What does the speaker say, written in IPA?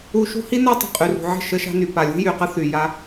u˦ ʃ ṳ˦ h i˦ n a˦ tˤ ə̤˨ qʼ y˨ r ṳ˨ ʕ ə̤˦˨ ʃ ə˦ ʃ a̤˦ n y˨ p a˨ lʲ ṳ˦ j y˨ q ə˦ θ y˨ j a˦

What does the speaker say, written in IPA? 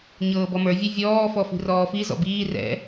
ɲ ɤː b ɔ m ə˞ vʲ ɛ vʲ ɔː f ɔ f i̤ r ɔː f i z ɔ̰ b iː r ɛ̰

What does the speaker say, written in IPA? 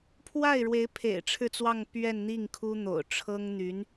pʰ w a˥˩ ɪ̯ ɻ w e˧˥ ɪ̯ pʰ ḛ˨˩ ɪ̯ ʈ͡ʂʰ ɻ̩˥˧ t͡s w ɑ˥˧ ŋ p ɥ ɛ˥˧ n n̪ i˥˩ ŋ kʰ u˥ n̪ o̰˨˩ ʊ̯ ʈ͡ʂʰ ɤ˥ ŋ n̪ y˧˥ n

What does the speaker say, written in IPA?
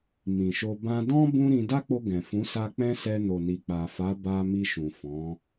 m ĩ˨ ʃ o˧ b ã˦ d ɔ̃˦ b ũ˦ ɾ ĩ˧ d a˦ k͡p o˧ ɡ ɛ̃˨ f ũ˨˦ s a˧ k͡p ɛ̃˦ s ɛ˧ n o˨ n i˨ k͡p a˨ f a˨˦ b a˧ m i˧ ʃ ũ˨ f ɔ̃˨˦

